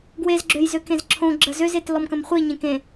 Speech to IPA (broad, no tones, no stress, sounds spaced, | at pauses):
ɡ w e z ɡ͡ǁ ø j z ø k ẽ z ǁʰ õ ɡ͡ǁ ə z ø z e t l ɔ m k ə̃ m χʷ i ɲ ẽ k ẽ